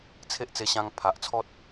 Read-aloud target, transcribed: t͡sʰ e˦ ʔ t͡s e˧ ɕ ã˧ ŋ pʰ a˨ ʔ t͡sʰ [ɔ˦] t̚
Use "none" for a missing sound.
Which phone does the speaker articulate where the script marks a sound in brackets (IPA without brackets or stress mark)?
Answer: ɔ˦